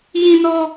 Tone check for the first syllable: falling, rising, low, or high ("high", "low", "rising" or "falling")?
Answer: high